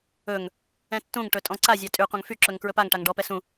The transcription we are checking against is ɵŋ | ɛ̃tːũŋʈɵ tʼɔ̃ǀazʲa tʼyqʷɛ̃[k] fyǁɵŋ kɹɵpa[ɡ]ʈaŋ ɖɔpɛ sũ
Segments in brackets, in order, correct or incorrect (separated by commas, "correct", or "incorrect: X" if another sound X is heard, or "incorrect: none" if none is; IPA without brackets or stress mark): incorrect: ŋ, incorrect: ŋ